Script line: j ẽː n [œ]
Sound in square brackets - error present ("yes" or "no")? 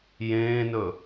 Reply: yes